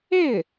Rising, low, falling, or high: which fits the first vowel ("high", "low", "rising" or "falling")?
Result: falling